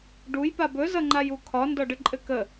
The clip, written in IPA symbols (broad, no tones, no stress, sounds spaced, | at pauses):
ɖ u j p a b ɵ z ʌ ŋ͡ǃ a j u kʰ ɒ n d ɒ ɖ ɘ ǃʼ ɘ k ə